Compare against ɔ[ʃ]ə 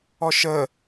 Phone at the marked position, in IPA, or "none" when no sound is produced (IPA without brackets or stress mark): ʃ